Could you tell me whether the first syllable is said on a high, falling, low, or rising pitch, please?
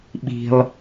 high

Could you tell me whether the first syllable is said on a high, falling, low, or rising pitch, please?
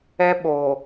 high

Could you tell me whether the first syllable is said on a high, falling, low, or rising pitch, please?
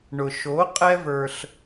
low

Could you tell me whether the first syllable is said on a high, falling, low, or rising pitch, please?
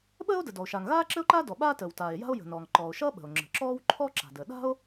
high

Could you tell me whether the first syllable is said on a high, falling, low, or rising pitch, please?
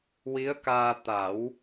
rising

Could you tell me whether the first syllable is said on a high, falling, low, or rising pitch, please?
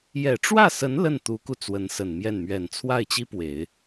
low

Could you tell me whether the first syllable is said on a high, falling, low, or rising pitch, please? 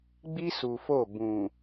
high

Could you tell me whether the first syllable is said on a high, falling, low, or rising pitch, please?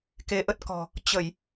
rising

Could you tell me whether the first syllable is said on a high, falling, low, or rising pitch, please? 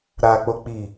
low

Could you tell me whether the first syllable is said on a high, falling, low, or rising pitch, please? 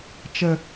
low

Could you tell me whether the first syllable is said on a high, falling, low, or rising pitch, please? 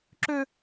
high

